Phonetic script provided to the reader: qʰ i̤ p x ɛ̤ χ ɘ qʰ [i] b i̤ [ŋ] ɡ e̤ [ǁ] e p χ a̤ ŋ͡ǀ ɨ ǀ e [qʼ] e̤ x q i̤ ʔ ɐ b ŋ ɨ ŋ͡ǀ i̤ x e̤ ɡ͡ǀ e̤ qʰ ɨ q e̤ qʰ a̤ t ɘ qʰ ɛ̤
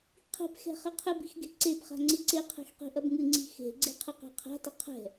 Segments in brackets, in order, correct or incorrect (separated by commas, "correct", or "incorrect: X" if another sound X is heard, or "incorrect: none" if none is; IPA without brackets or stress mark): incorrect: ɨ, incorrect: x, incorrect: ǀ, incorrect: qʰ